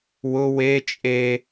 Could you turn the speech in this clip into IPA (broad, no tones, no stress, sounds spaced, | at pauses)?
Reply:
w ʊ w e t͡ʃʼ e